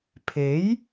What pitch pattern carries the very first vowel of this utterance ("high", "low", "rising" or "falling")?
rising